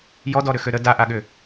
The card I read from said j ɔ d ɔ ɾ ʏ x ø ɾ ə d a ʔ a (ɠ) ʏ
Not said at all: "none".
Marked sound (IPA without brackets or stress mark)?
ɠ